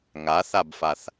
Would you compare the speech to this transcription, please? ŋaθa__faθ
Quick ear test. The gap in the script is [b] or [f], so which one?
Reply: b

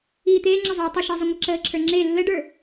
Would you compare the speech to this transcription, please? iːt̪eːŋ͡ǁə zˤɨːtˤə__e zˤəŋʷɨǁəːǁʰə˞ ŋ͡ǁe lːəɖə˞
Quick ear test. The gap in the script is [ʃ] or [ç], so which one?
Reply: ʃ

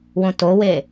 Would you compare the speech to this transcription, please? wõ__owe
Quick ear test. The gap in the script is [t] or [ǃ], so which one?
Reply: t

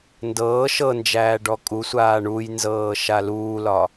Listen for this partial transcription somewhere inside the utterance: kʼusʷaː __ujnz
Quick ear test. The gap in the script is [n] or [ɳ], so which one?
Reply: ɳ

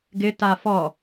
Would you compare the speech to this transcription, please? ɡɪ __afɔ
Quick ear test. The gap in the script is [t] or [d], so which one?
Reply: t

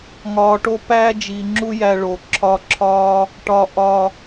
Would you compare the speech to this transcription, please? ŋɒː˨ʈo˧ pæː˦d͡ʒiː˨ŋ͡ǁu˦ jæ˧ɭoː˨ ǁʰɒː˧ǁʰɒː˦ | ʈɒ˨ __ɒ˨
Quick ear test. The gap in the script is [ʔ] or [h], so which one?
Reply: ʔ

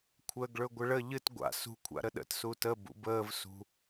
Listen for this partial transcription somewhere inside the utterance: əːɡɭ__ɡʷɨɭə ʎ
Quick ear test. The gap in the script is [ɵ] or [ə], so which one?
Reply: ɵ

